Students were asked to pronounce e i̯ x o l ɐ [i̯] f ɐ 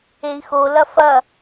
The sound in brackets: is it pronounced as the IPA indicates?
no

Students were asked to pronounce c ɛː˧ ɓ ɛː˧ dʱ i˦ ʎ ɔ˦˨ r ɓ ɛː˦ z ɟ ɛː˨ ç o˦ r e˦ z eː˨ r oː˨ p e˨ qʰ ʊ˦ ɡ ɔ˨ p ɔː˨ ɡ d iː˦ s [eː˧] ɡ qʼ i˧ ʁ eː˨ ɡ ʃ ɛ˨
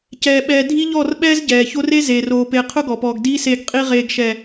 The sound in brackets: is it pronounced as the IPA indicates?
yes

